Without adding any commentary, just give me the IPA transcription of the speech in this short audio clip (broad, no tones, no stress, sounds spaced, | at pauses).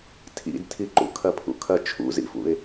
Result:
tʰ ḭ d tʰ i ǃ ṵ kʰ ɐ pʰ ṵ kʰ ɐ t͡ʃʰ ṵ z ḭ f ṵ ɪ̯